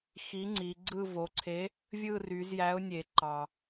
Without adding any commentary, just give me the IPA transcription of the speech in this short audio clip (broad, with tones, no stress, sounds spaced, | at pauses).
x i˨˥ ŋ͡ǀ i˩˧ ɡ͡ǀ ɯ˦˨ v o˩˧ ǀʰ e˨˥ | vʲ ɯ˦˨ r y˩˧ z j æ˨˥ ʊ̯ nʲ e˩ ǃ ɑ˩